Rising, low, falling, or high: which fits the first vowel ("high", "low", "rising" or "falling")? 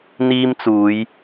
high